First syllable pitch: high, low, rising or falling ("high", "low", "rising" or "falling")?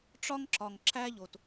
high